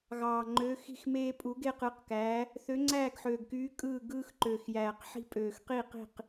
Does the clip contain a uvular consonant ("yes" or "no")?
yes